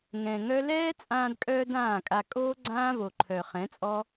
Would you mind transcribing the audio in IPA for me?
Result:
ŋ ɛ̃˨ ŋ œ˦ l ɛː˦ t͡sʼ ãː˧ d kʼ œː˧ d ãː˦˨ kʼ a˧ kʼ oː˦ ɡ͡ǀ ãː˦ v o˨ ǃʰ œ˨ χ ɛ̃˨˦ t͡sʼ ɔ˦

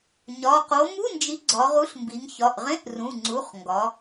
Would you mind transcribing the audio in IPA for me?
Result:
ɲ ɒ˩˧˩ q o˨˥ m u˧˥˧ n d͡ʒ i˨˥ ɡ͡ǀ ɒ˩˧ ʁ u˨˥ ɬ m b i˩˧ ŋ ç ɒ˩˧˩ ʔ ʁ ẽ˧˥˧ ʔ r ũ˩˧˩ ŋ͡ǀ u˩˧˩ χ ŋ ɡ ɒ˩˧

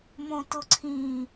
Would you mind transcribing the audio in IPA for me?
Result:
m õ t ʊ ǀʰ ĩ

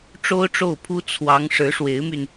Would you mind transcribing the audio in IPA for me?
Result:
ʈ͡ʂ o˥ ʊ̯ ʈ͡ʂ o˥˩ ʊ̯ pʰ u˥ t͡sʰ w ɑ˧˥ ŋ ʂ ɻ̩˧˥ ʂ w e˧˥ ɪ̯ m y˧ n

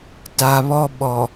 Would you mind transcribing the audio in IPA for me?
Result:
t a˨ β ɔ˦ ɓ ɔ˨

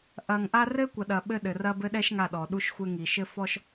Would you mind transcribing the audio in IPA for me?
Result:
ʔ ɐ˨ ŋ ʔ a˦ r ɘ˦ kʷ ɐ˨ ɗ ɐ˨ ɓ ɘ˦ ɗ ɘ˨ r ɐ˦ b ɘ˦ ɗ ɛ˦ ʃ ŋ a˦˨ ɗ ɔ˨ ɗ u˦ ʃ xʷ ɘ˦ ŋ i˨ ʃ ɘ˦ f ɔ˦ ʃ

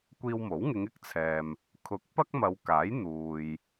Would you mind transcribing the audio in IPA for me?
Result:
kʷ iː˧ w m o˨˥ w ŋ ɪ˨˧ ŋ ɪ˥ k̚ t͡sʰ ɛː˨ m | kʰ ʊ˨˥ k̚ p ɐ˥ k̚ m ɐ˨˧ w k aː˨˥ j n̪ uː˨ j

